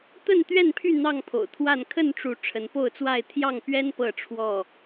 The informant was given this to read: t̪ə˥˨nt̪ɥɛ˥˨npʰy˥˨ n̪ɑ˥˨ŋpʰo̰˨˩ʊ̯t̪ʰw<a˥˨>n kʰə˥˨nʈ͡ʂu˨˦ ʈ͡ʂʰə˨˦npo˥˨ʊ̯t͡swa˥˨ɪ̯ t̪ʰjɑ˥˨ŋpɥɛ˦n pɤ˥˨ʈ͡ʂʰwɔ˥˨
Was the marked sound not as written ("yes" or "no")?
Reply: no